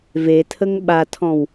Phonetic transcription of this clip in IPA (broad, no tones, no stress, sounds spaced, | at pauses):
v e tʰ ə ŋ ɓ a tʰ ɔ̃ w